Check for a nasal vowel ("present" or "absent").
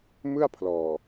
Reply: absent